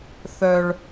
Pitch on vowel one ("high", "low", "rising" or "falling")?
high